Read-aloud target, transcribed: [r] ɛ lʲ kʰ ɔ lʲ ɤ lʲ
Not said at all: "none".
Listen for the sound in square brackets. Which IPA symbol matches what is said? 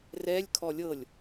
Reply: r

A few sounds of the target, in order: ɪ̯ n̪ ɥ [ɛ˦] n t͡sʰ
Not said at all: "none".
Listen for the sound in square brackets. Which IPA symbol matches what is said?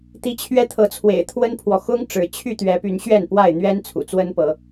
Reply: ɛ˦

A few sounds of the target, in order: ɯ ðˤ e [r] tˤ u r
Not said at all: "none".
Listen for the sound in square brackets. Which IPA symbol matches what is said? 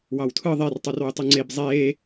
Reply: r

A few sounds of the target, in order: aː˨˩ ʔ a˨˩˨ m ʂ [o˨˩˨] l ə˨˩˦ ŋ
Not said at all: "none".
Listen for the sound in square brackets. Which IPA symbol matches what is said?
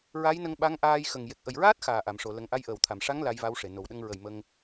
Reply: o˨˩˨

